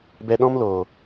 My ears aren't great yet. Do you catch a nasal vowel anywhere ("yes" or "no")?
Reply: yes